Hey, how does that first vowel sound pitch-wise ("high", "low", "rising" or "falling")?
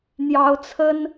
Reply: rising